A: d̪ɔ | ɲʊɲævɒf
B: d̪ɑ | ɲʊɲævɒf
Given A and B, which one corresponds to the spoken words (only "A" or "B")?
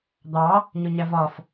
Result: B